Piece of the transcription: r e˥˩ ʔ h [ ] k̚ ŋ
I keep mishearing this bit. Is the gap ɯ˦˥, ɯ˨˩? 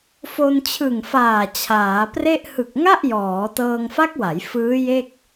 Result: ɯ˨˩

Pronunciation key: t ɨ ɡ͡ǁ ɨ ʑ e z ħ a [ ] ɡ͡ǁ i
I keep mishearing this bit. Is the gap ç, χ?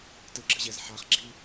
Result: χ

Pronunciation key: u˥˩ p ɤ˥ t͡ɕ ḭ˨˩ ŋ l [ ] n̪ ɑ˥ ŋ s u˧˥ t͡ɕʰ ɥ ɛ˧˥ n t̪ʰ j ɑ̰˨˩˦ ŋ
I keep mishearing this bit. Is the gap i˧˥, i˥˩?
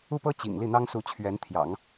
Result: i˥˩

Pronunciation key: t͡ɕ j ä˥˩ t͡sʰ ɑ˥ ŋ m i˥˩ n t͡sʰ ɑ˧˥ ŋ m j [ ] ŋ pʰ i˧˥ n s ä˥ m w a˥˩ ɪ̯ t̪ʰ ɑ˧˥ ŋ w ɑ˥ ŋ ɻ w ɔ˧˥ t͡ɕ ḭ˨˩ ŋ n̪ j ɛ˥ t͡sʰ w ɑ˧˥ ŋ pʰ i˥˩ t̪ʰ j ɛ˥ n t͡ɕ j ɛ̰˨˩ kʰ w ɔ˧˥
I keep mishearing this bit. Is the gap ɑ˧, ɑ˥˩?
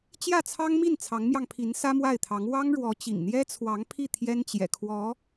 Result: ɑ˧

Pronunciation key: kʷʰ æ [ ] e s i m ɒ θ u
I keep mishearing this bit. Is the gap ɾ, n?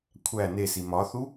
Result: n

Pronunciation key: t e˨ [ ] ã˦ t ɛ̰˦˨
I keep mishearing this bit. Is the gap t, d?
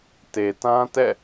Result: t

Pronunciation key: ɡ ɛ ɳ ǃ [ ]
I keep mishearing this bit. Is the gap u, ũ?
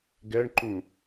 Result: ũ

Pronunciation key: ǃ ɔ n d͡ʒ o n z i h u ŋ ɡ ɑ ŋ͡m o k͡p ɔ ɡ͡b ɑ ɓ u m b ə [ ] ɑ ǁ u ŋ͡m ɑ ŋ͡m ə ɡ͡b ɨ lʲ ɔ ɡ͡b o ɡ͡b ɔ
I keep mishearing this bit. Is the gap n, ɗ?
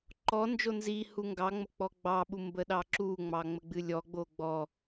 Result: ɗ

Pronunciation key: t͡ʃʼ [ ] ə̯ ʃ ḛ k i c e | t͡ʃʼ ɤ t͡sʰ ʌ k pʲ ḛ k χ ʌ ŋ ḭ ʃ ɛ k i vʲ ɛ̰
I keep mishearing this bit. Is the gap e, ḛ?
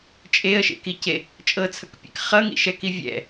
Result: e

